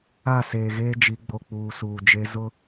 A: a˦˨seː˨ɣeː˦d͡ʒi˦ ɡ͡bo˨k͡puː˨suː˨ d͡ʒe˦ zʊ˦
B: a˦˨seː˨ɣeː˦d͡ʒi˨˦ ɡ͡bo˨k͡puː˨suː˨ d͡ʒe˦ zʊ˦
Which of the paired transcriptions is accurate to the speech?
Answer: B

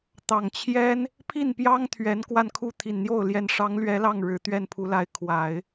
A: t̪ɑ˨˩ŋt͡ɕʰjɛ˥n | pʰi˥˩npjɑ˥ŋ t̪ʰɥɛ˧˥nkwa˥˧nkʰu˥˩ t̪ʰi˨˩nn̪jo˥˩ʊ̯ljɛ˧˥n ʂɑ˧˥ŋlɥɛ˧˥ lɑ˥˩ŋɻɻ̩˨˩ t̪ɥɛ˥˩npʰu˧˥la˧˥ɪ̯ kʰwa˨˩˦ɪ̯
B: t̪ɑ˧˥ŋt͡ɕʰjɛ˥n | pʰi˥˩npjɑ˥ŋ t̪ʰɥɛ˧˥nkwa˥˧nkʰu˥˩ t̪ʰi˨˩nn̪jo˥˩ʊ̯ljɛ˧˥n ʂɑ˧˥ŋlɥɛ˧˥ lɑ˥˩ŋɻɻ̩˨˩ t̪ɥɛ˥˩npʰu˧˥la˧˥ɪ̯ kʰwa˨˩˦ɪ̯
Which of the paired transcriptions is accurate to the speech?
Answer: A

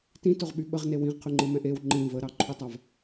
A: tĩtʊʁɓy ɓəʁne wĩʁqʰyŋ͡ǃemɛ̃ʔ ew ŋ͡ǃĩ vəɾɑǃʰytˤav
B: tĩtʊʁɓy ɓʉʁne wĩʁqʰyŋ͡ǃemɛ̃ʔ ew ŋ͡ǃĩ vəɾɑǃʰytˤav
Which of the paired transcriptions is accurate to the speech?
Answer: A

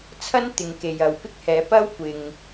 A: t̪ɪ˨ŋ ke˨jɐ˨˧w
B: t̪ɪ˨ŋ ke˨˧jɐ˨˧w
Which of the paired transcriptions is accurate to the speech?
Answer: A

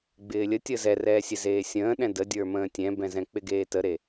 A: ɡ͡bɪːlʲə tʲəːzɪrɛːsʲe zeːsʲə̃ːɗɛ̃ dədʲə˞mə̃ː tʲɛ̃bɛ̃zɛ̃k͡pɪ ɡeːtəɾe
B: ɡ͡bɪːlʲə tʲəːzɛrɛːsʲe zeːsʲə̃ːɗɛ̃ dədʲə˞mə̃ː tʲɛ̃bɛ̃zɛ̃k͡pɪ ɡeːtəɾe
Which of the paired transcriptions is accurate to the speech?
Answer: B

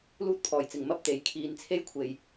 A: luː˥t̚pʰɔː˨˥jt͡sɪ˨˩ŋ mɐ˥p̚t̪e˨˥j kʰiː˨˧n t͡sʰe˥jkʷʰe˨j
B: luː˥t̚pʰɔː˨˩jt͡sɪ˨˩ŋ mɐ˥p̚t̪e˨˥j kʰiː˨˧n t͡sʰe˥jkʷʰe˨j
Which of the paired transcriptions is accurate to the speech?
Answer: B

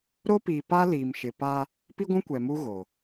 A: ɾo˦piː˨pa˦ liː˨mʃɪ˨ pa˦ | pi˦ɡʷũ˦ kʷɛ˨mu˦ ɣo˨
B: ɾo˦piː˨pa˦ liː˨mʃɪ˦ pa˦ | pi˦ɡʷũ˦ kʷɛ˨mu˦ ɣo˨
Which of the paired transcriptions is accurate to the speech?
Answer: A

